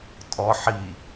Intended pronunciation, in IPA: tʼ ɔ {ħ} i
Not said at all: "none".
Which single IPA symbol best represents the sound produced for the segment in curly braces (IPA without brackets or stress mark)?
ħ